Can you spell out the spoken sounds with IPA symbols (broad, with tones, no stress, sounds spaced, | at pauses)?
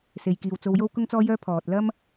s e˨ j k iː˨ w t͡s o˧ w j o˥ w k ʊ˥ ŋ t͡s ɔː˥ j œː˥ pʰ ɔː˨ t̚ l ɐ˥ m